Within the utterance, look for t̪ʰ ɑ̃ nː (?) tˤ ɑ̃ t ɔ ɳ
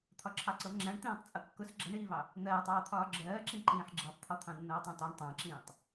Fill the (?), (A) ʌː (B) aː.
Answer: A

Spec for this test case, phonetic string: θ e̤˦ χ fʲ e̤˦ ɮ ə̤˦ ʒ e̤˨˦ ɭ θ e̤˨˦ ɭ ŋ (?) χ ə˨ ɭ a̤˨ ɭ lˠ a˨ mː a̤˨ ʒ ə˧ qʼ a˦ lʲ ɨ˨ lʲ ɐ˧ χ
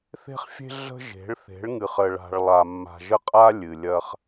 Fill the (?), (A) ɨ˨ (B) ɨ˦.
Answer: A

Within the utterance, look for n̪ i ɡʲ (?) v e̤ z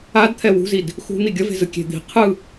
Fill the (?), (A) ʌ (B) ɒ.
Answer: A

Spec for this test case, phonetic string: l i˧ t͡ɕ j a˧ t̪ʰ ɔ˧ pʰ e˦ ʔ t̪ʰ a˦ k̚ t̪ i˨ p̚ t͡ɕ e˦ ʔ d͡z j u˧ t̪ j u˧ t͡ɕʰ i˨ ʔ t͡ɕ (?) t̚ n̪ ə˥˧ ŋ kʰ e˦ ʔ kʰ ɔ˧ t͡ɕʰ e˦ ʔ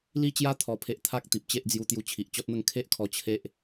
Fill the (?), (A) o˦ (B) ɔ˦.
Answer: B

